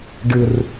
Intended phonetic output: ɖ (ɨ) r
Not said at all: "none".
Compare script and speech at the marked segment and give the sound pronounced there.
ɨ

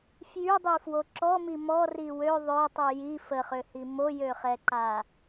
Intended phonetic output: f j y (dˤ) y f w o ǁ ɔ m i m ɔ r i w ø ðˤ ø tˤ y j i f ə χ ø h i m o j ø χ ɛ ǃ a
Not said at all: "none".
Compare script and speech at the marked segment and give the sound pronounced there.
dˤ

